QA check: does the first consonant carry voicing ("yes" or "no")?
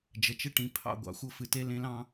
yes